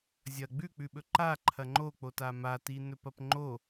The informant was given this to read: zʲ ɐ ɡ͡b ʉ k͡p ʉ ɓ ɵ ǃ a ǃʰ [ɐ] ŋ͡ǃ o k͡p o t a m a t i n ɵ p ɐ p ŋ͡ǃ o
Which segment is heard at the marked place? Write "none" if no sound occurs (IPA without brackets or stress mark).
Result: ɐ